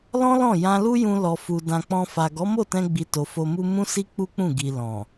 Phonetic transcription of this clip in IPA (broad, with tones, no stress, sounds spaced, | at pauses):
l ɔ̃˦ l ɔ̃˦˨ j ã˧ l u˦ j ũ˧ l ɔ˨ f u˨ d ã˨ k͡p ɔ̃˧ f a˨ ɡ ɔ˨˦ m o˦˨ t ɛ̃˧ ɡ͡b i˨ t o˨ f o˧ m u˦ m ũ˦ s i˦ k͡p u˦ k͡p ũ˦˨ ɡ i˨ l ɔ̃˨